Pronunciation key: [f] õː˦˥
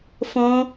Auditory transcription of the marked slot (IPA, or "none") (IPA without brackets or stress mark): f